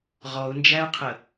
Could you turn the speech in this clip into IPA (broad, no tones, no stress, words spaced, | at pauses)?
ʁɔʊ̯nd͡ʒæʊ̯qʰə